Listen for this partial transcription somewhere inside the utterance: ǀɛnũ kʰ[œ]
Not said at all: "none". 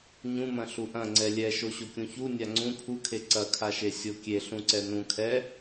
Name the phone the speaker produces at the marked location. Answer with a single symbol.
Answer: ɛ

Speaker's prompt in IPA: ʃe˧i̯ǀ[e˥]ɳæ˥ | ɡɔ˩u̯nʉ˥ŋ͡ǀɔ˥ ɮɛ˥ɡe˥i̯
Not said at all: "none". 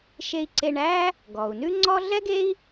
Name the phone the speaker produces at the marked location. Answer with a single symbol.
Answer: e˧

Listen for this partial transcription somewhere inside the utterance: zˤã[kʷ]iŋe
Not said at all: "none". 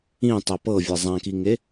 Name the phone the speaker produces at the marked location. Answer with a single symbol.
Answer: k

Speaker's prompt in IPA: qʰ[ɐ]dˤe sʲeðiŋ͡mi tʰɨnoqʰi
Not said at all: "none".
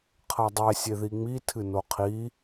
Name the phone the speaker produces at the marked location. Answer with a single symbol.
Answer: ɐ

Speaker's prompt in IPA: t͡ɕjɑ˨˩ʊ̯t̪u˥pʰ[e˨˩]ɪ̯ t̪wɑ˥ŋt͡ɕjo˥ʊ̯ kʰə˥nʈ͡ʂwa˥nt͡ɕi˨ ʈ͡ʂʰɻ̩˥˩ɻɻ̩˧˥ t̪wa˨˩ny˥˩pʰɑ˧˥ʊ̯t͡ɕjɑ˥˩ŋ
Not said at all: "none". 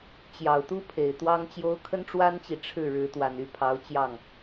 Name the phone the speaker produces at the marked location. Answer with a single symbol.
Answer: e˨˩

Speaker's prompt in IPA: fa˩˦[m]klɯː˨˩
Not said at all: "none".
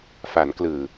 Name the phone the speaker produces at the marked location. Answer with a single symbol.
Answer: n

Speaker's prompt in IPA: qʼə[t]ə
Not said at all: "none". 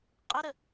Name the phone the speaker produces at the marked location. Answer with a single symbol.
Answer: ɾ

